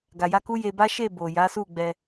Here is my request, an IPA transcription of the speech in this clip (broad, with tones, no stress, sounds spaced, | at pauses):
ɡ a˨ j a˧ k u˦ j e˧ b a˦ ʃ e˦˨ b o˨ j a˨˦ s u˦˨ ɡ͡b ɛ˧